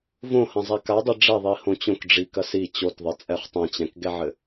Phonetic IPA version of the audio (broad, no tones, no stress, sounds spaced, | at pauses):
v õ h ɐ̃ zˤ ɛ k a dˤ i ɖ͡ʐ ɛ ðˤ i h õ t͡ɕ õ k ɖ͡ʐ i k ɐ s i t͡ɕ o t ðˤ ɘ t͡sʼ ɛ χ tˤ ɛ̃ t͡ɕ ɛ̃ k ɡ ɛ ʕ ɘ